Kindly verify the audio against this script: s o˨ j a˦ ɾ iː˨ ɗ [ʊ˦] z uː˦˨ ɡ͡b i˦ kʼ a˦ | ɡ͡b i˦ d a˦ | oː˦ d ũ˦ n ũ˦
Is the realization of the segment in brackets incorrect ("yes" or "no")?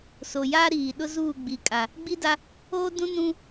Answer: no